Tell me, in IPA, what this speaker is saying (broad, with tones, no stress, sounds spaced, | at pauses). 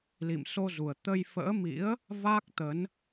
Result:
l ḭ˧˨ m s o˧ z u˨˩ ə̯ t̪ ə˧ j f ə̰ː˧˥ m ḭ˧˥ ə̯ | v a˦˥ k̚ t̪ ə˨˦ n